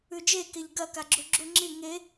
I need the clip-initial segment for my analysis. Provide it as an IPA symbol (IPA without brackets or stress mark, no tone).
ʉ